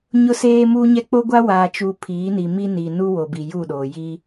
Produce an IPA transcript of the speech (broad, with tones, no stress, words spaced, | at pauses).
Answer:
ɲʊ˦seː˦muː˦ɲɛ˦ k͡po˦ɡʷa˦ waː˨t͡ʃu˨ pʰiː˨˦ni˨ mi˦ni˨nu˦ wo˨bi˨ju˦˨ɗoː˨ ji˦